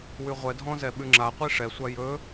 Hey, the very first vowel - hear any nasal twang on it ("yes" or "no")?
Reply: no